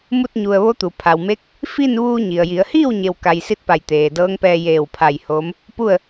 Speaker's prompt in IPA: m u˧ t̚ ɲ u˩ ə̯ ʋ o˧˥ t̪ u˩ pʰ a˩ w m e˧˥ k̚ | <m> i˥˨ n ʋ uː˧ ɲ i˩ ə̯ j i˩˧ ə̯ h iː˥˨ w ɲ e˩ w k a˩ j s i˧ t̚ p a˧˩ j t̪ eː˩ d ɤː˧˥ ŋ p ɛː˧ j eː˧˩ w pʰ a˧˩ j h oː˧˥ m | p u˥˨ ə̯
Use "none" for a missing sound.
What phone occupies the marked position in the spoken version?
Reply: f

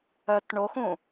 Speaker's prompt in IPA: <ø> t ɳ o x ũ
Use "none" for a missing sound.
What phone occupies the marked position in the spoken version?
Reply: œ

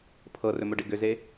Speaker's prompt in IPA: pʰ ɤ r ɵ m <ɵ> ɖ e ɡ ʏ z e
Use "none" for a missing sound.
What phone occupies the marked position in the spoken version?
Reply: ɵ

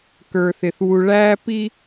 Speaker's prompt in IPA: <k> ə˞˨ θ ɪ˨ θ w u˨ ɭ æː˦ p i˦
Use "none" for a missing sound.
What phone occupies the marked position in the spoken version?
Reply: k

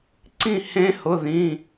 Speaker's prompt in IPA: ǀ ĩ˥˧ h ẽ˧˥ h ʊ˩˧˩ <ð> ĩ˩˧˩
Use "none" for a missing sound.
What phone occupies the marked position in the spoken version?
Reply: ð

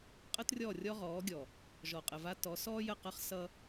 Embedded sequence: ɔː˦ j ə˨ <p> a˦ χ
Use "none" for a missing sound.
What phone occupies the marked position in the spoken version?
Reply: q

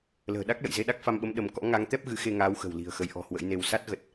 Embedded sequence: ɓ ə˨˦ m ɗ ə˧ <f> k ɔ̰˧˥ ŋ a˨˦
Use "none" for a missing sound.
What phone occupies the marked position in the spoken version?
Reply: m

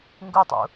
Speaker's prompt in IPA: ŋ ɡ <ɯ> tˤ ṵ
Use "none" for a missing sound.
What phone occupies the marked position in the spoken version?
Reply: u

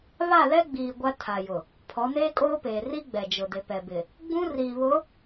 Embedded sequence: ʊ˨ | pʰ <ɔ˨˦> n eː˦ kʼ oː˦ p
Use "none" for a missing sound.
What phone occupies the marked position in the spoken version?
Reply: ɔ˨˦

